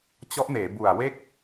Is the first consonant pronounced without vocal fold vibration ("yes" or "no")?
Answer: yes